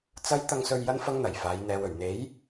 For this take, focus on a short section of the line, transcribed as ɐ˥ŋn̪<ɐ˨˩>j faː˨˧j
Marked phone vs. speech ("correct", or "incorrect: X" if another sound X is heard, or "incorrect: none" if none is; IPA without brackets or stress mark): correct